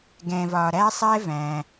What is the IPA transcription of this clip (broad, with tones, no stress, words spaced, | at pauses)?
ɡɛ̃˨vɒ˨ɾæ˥sˤɛ˥ væ̃˩